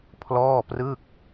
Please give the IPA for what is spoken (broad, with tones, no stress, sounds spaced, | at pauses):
pʰ l ɔː˥˩ p r ɯ˥˩ k̚